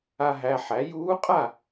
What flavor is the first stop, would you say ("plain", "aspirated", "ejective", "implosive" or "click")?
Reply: ejective